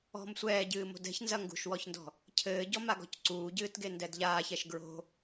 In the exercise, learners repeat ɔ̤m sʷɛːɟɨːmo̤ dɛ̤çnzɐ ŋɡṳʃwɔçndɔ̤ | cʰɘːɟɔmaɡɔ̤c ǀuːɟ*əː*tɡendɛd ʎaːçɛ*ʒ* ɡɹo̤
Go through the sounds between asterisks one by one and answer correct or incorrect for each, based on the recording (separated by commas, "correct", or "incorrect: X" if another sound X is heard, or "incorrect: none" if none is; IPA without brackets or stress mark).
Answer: incorrect: ɨː, incorrect: ʃ